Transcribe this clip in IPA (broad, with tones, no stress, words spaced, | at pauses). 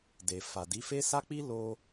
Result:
de˨fa˨di˨˦fe˦ sa˦k͡pi˦ lo˧